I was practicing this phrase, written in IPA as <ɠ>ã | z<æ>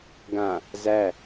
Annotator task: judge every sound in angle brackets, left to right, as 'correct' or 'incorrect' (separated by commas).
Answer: incorrect, correct